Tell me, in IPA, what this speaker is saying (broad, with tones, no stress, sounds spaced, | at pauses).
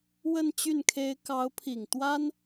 w ə˥˧ n t͡ɕ y˥˩ n kʰ e˥ ɪ̯ k ɑ˧˥ ʊ̯ pʰ i˨˩ ŋ t̪ w a˥ n